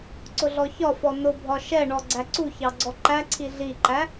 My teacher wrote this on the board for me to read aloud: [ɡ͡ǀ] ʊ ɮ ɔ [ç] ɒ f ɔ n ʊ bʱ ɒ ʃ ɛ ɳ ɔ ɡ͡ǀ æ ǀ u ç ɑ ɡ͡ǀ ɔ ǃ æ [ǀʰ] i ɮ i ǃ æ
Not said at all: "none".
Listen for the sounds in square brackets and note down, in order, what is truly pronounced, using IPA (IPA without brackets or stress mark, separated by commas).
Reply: ǀ, ç, ǀʰ